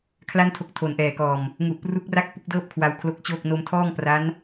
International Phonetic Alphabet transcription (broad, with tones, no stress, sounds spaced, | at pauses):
kʰ l a˥˩ n tʰ o˦˥ k̚ tʰ o˨˩ n ʔ ɛː˨˩ k ɔː˨˩ m | ŋ u˨˩ ʔ p r u˦˥ k̚ r a˥˩ k̚ p u˥˩ k̚ d ɤː˥˩ p̚ kʰ w a˧ w kʰ l o˦˥ k̚ t͡ɕ oː˥˩ k̚ n o˧ m tʰ ɔː˥˩ ŋ p r a˦˥ n